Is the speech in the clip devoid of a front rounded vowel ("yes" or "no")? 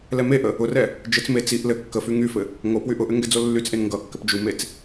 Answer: no